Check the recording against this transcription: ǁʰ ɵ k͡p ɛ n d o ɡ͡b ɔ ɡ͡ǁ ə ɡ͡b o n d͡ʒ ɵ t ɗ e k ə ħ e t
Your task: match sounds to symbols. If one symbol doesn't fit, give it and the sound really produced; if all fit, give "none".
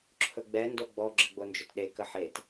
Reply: k͡p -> ɡ͡b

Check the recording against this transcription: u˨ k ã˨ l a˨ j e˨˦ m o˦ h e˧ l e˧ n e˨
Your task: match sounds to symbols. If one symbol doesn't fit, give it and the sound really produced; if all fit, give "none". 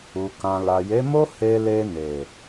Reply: none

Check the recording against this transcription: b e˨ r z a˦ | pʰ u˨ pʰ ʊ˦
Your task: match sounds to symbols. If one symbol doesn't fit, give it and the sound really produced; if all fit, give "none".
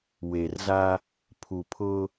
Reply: b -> w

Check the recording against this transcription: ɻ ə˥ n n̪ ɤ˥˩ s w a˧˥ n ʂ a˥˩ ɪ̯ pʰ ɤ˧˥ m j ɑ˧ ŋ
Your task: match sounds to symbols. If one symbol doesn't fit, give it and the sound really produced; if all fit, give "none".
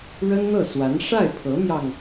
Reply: none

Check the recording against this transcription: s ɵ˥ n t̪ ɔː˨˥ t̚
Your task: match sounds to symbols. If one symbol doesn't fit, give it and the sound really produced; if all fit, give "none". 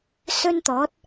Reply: none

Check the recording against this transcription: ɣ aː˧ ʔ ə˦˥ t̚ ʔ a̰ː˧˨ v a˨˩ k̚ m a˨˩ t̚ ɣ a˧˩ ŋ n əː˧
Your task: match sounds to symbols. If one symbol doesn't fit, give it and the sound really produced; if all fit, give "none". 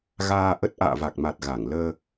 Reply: n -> l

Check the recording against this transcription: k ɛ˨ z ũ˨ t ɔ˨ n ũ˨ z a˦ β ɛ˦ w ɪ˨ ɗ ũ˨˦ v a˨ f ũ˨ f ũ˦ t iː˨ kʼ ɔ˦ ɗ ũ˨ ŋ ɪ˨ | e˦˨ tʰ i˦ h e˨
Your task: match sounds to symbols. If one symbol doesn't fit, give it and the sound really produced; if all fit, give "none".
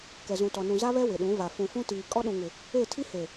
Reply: none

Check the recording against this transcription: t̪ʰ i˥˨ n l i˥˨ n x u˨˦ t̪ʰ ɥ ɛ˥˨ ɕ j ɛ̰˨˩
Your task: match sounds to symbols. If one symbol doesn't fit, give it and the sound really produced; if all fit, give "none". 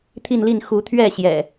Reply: none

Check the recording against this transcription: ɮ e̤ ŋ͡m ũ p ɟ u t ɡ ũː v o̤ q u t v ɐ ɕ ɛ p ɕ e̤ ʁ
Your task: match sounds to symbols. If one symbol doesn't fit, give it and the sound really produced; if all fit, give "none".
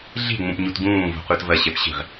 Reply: ɟ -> ɲ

